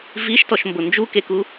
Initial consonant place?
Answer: labial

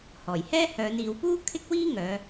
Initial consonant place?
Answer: glottal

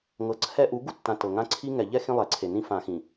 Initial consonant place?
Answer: velar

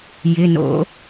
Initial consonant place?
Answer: palatal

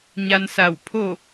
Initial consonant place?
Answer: palatal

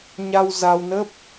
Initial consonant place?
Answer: palatal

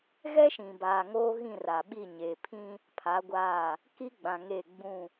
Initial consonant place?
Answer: velar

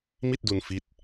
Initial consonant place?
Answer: labial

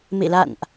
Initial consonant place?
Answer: labial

